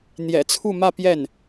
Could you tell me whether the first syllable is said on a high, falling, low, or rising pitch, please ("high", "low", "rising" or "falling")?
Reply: low